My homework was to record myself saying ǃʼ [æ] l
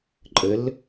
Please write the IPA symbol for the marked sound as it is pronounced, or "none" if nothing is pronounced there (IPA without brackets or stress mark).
ə